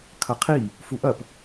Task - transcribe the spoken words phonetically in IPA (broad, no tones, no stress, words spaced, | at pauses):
kʰɐqʰi | fuʔɐp